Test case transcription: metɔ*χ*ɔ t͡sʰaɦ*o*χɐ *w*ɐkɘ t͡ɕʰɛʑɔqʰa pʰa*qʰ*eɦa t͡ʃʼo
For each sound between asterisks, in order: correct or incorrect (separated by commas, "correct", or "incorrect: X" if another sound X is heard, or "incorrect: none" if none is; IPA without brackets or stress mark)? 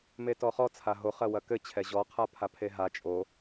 correct, correct, correct, incorrect: pʰ